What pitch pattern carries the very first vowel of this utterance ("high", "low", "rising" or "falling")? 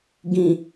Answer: low